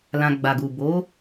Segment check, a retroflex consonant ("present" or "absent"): absent